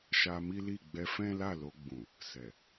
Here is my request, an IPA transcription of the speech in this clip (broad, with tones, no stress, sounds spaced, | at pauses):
ʃ a˧ m i˦ l i˦˨ ɡ͡b ɛ˧ f ɛ̃˦ l a˦˨ l o˧ ɡ͡b ũ˨ | s ɛ˨